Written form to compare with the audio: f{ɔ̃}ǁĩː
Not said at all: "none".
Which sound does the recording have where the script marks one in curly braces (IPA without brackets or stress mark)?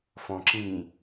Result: ɔ̃